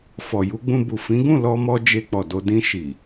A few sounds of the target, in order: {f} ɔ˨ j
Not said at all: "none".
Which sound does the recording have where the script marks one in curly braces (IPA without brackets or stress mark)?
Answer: f